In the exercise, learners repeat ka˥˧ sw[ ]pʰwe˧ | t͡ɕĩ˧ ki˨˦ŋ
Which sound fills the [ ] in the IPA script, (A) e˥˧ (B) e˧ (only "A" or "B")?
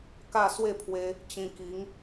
A